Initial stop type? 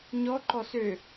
click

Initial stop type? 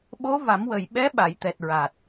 implosive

